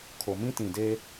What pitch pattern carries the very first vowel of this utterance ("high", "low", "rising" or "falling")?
low